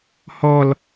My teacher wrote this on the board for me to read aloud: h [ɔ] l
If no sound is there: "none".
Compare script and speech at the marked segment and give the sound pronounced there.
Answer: ɔ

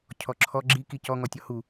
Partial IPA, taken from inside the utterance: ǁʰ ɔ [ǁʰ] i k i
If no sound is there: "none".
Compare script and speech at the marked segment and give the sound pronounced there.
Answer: ɡ͡ǁ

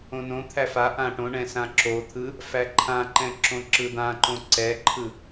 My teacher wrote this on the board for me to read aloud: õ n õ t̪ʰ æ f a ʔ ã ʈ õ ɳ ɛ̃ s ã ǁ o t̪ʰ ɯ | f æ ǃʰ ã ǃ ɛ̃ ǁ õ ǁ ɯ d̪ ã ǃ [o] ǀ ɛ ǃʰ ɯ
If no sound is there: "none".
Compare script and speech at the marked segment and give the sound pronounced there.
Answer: õ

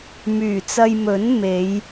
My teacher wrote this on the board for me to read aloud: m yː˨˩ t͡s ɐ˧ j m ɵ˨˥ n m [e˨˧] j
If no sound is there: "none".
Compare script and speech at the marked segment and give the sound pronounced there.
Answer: e˨˧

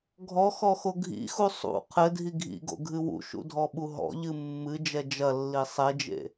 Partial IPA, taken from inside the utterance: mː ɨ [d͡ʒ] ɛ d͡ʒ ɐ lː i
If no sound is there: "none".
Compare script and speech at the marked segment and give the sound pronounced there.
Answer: d͡ʒ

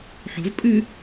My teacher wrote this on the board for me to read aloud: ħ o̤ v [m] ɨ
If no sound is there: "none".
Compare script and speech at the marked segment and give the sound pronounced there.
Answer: pʼ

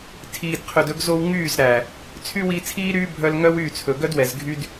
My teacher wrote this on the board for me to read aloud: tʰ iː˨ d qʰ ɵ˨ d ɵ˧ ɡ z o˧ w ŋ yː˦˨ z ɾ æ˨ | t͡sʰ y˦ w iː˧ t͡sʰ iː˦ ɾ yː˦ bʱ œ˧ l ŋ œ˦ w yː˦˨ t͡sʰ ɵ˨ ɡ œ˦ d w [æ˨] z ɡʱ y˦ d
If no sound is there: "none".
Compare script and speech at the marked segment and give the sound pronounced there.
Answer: ɛ˨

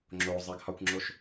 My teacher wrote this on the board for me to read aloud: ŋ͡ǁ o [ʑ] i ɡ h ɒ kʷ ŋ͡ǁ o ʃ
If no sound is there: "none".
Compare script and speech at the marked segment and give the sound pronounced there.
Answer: zˤ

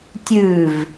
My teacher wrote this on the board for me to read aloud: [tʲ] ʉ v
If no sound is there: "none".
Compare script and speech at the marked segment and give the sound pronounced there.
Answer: tʲ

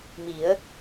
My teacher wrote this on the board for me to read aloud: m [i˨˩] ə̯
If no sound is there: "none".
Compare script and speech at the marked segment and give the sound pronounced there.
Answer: i˨˩˦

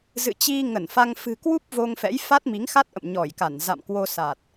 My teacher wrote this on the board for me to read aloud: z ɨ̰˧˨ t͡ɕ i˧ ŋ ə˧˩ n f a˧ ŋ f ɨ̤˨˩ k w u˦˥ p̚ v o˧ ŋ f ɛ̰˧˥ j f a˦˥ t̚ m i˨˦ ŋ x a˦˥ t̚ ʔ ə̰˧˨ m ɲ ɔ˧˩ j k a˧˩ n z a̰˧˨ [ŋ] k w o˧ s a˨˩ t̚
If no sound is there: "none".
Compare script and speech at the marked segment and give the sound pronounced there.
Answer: m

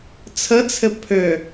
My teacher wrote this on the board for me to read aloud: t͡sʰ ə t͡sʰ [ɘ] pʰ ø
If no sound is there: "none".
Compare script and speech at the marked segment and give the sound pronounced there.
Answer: ɘ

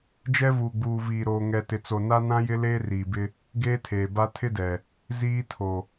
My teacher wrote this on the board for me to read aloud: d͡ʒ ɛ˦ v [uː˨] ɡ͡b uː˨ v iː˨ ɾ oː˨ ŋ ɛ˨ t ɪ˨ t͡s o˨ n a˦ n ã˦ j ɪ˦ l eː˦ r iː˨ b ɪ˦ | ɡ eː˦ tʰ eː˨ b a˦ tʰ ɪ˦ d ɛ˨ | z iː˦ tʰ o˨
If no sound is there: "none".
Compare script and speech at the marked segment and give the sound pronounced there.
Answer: uː˨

